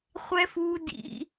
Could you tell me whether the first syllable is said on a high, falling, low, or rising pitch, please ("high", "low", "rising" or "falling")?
high